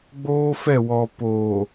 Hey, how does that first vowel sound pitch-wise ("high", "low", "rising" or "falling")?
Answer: high